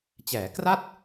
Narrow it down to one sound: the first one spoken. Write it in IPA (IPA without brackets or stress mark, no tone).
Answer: t͡ɕ